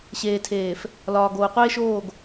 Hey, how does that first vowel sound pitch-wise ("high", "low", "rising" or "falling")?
low